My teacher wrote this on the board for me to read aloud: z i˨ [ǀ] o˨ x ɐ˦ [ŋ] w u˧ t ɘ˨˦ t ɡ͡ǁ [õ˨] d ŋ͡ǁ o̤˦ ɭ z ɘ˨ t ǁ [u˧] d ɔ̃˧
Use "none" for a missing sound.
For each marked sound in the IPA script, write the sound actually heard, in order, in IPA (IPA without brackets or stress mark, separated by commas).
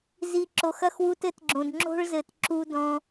ǁ, x, õ˨, u˧